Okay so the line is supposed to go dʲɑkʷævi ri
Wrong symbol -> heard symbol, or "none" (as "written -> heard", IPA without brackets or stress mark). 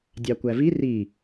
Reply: none